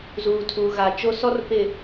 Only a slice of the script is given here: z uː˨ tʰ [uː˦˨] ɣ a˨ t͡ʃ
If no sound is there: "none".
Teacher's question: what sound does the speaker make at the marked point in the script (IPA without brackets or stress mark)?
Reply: uː˨